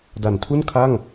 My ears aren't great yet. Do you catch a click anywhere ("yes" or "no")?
no